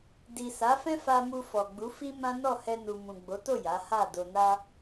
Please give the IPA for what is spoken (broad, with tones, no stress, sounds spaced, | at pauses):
d i˨ s a˨˦ f ɛ̃˦ f a˧ m u˧ f ɔ˨ ɡ͡b u˨˦ f i˦ m ã˦ n ɔ˦˨ h ɛ˧ n u˨ m ũ˨ ɡ͡b o˨˦ t o˦˨ j a˨˦ h a˦˨ d o˧ n a˦